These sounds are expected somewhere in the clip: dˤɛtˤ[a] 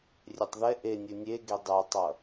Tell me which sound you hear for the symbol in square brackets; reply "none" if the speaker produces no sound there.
ʌ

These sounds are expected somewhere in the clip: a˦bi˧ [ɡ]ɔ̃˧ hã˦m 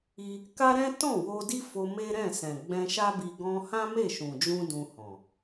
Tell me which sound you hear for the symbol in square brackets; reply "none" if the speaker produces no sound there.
ɡ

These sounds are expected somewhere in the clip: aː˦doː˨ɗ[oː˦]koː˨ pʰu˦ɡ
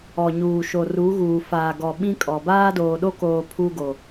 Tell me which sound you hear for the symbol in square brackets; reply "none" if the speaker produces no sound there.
o˦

